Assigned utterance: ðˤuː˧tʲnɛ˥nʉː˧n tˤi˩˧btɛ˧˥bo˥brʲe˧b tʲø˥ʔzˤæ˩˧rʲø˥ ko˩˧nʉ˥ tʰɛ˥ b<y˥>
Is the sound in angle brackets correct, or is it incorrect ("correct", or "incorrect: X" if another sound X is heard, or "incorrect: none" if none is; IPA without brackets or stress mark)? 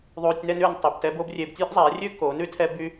correct